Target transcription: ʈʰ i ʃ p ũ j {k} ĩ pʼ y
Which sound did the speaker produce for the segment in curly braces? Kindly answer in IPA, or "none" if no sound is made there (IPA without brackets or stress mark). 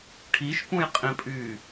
qʼ